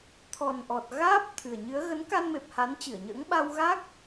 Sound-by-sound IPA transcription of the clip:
t̪ʰ ɔ˨˩ n ʔ ɔ˨˩ t̚ ɣ aː˦˥ p̚ t̪ʰ ɨ˨˩ ə̯ ɲ ɨ˨˦ ə̯ ɣ ə˨˦ n k a˧ n m e˨˩ p̚ h a˨˦ n t͡ɕ ɨ˧˩ ə̯ ɲ ə̰ː˧˥ ŋ ɓ a˧ w ɣ aː˦˥ k̚

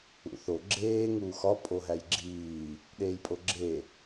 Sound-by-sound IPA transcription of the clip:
ṵ θ o ɡ͡ǁ eː ŋ uː x ɒ pʼ o ɦ æ j ɡ͡ǁ iː | ɗ eː j pʼ o ɡ͡ǁ e

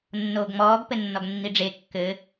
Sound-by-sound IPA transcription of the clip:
nː oː ɡ ŋ͡m ɔː ɡ p ɘ nː ɔ ɡ nː i ɖ͡ʐ e kː ɘ

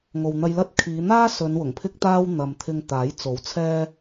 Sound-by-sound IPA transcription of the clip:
ŋ o˨ w n̪ ɐ˧ j l ɐ˥ t̚ kʰ iː˨˧ n̪ aː˥ s ɵ˨˧ n w ʊ˨˩ ŋ pʰ ɪ˥ k̚ t̪ aː˥ w n̪ ɐ˨ m t̪ʰ ɪ˧ ŋ t̪ aː˨˥ j t͡s o˨˥ w t͡sʰ ɛː˥

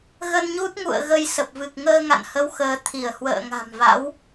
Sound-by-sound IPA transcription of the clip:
ɣ ə˧ n ɲ u˦˥ t̚ ŋ ṵ˧˨ ə̯ ɣ ə˧ j s ə˨˩ p̚ v ɨ˨˩ k̚ ŋ əː˧ ŋ a̰˧˨ n h ə˨˦ w x əː˨˦ t̪ʰ i˧˩ ə̯ h w ə̰ː˧˨ ŋ a̤˨˩ m v a̰˧˥ w

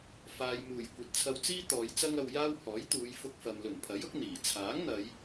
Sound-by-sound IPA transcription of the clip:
f aː˨ j m uː˨˩ j kʷ ɐ˨ t̚ t͡sʰ ɐ˧ w t͡s iː˥ t̪ ɔː˨˧ j t͡s ɐ˥ ŋ ɐ˧ w j aː˥ w h ɔː˨˥ j t̪ uː˨˧ j f ʊ˧ k̚ f ɐ˨ m l ɵ˨˩ n pʰ ɐ˨˥ j ʊ˨˥ k̚ n̪ iː˨˩ t͡sʰ aː˨˥ ŋ n̪ ɐ˨˧ j

